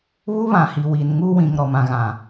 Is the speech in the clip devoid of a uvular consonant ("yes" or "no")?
yes